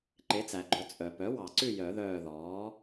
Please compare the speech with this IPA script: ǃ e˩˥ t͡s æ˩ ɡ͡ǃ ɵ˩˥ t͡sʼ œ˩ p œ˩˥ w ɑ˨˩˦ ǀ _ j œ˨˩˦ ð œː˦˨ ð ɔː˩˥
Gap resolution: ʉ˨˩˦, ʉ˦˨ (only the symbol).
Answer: ʉ˦˨